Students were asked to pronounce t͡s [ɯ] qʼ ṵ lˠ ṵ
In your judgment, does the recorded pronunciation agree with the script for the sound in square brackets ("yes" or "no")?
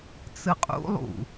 yes